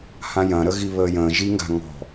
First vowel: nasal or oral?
nasal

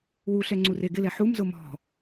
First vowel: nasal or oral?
oral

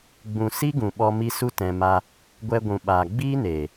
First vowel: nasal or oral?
nasal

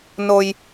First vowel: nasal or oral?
oral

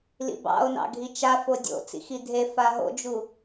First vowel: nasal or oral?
oral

